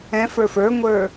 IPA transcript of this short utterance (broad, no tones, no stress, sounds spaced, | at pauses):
ɛ̃ f ə˞ f ə˞ ŋʷ ə˞